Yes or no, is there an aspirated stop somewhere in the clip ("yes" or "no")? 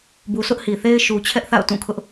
yes